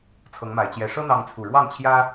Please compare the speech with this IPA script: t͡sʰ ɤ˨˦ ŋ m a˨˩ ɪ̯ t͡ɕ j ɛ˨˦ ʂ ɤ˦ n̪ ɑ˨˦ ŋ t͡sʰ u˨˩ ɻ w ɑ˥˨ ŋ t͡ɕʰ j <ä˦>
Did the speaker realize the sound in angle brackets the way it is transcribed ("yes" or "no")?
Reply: yes